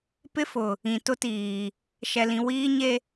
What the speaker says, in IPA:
p ɪ˦ f ʊ˨ | ĩ˨ t ʊ˦ t iː˨ | ʃ ɛ˨ l ĩ˨ w iː˦ ɲ e˦

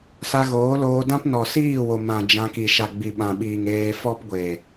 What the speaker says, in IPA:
s a˧ ɣ oː˨˦ l oː˧ d ã˦ p n ɔ˨ s iː˦˨ w o˨ m ã˨ d͡ʒ ã˧ k i˨ ʃ a˨ ɡ͡b i˨ ɓ ã˨ ɓ iː˨ ŋ eː˧ f ɔ˦ p ɡʷ e˨

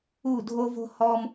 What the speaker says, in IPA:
u˦˨ dʱ o˦ v o̤˦ h ɔ˦ m

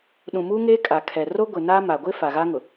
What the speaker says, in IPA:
ɗ ũ˨ m u˦ ŋ eː˦ kʼ a˨ kʰ ɛ˨ r o˦ ɡʷ ɪ˨ n a˦ m a˨ ɡʷ ɪ˦ f a˨ ɣ a˦ ŋ ʊ˨

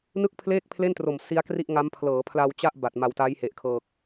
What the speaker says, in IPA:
n ɯ˥˩ k̚ pʰ l eː˥˩ k̚ pʰ l e˥˩ n t r o˨˩ m s i˦˥ a̯ k r i˥˩ ʔ ŋ a˦˥ m pʰ l ɤː˩˦ pʰ l a˧ w t͡ɕ a˥˩ ʔ b a˨˩ t̚ m a˨˩ w t a˦˥ j h e˨˩ ʔ kʰ ɤː˨˩ k̚

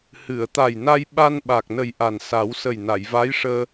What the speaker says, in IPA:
h ɨ˨˩˨ ə̯ t̪ a˨˩ j n a˧ j ɓ a˧ n ɓ a˨˩ k̚ n ə˨˩ j ʔ a˨˩ n s a˨˩˦ w s ə˨˩ j n a˨˩˨ j v a˧˥ j ʂ əː˧

